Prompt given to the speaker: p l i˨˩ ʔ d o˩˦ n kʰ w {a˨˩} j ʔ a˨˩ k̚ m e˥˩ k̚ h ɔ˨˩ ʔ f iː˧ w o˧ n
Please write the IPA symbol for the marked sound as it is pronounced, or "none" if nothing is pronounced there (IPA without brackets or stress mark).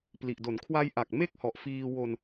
a˧